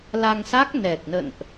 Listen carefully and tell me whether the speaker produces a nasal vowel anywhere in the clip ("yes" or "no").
no